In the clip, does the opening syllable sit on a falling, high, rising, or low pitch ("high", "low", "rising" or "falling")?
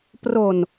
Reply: low